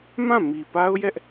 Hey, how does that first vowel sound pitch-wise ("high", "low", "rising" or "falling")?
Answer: falling